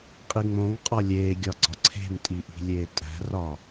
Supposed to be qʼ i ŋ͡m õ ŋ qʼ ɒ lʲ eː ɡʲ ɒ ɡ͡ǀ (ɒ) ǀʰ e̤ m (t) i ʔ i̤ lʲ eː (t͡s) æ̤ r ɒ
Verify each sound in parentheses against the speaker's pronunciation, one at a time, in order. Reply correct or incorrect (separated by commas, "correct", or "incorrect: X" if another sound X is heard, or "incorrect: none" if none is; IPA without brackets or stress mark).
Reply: correct, incorrect: tʼ, incorrect: tʼ